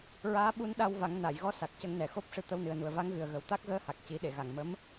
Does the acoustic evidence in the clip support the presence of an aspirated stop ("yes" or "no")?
no